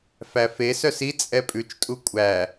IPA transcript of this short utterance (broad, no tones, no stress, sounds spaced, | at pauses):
f æ f e s œ s i t͡sʼ ɛ pʼ ʉ t͡ʃ tʼ u kʷʼ æ